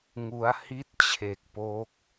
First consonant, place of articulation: velar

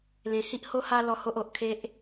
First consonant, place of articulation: alveolar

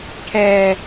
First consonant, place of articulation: retroflex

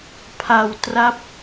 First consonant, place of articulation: labial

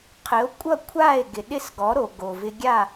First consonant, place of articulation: uvular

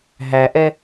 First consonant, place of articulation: glottal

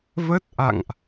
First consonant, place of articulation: labial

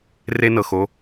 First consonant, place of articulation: alveolar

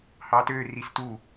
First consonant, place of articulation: glottal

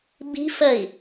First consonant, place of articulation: labial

